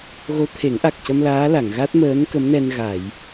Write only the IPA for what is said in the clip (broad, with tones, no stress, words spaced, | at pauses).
ɣo˧˥t̪ʰe˨˩˦ŋʔa˨˩k̚cə˧m laː˧˥la˨˩˨ŋɣa˦˥t̚ məː˧˥nkə˧˥mnɛ˧n ɣa˨˩˨j